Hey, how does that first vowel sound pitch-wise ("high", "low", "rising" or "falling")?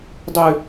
high